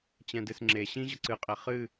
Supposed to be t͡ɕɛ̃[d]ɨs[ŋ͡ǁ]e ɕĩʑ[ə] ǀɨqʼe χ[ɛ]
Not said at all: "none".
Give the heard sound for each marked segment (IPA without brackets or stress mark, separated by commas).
d, ŋ͡ǁ, ə, ɨ